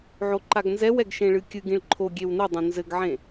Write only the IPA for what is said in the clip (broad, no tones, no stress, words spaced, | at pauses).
ʕoǃaɡnzɛw ɛɡʃẽɭɨkʲɨɡ ĩɭǃʰo ɡʲewnɨ dˤũnzɘɡʕẽ